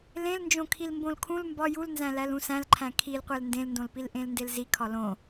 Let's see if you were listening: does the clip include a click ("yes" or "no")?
yes